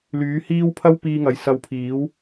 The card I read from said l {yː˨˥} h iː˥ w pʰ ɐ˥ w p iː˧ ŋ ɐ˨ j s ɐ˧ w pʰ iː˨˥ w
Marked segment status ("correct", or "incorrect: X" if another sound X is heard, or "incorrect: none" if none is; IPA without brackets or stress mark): correct